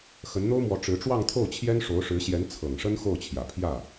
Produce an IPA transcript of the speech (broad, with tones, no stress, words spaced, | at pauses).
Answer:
xə˧˥nn̪o˥ʊ̯mwɔ˧˥ ʈ͡ʂɻ̩˧˥ ʈ͡ʂwɑ˥˧ŋt̪ʰo˥˩ʊ̯t͡ɕʰjɛ˥n ʂo˧˥ʊ̯ʂɻ̩˧˥ɕjɛ˧˥n t͡sʰɤ˨˩ŋʂə˥n xo˥˩ʊ̯t͡ɕʰjä˨˩ pʰjä˥˩